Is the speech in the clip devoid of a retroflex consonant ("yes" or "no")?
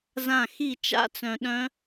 yes